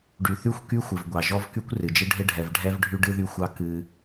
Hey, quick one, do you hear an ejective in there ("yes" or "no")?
no